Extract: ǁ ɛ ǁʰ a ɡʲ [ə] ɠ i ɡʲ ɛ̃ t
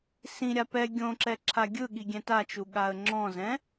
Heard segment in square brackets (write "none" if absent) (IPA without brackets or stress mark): ɯ